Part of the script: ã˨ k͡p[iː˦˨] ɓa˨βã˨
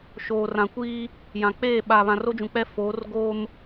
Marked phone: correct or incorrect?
incorrect